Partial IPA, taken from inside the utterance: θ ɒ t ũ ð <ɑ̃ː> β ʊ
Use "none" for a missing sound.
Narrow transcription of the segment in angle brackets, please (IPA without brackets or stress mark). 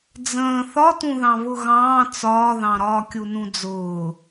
ɑ̃